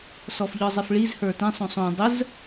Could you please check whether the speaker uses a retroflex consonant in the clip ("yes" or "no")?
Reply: yes